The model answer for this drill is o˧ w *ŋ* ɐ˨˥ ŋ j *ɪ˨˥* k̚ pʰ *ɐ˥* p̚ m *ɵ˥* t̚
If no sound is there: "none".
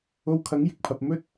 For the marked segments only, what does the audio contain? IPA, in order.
kʰ, ɪ˨˥, ɐ˧, ɵ˥

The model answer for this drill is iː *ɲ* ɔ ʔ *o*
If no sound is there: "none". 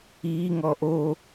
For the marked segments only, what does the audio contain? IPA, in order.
ŋ, o

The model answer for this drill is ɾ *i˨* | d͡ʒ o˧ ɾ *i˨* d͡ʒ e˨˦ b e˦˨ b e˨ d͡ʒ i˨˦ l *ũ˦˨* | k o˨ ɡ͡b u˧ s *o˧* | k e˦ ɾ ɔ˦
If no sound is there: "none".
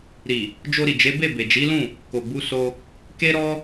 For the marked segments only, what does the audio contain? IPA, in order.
i˨, i˨, ũ˦˨, o˧

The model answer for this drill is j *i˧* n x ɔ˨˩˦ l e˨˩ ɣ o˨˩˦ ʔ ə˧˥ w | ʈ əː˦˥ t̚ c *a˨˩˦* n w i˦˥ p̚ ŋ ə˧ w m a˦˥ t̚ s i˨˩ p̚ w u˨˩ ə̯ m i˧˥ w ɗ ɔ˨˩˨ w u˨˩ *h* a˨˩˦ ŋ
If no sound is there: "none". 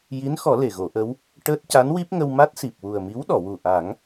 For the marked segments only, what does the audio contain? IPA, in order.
i˧˥, a˧˥, ʔ

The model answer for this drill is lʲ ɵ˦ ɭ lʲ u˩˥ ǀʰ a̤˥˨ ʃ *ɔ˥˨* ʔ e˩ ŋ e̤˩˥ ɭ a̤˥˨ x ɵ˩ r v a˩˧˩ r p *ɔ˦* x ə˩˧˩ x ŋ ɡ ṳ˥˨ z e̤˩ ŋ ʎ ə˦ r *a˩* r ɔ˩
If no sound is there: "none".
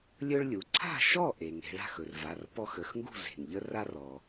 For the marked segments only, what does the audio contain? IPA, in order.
ɔ˥˨, ɔ˦, a˦

